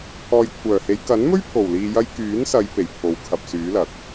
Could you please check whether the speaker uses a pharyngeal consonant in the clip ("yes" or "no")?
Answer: no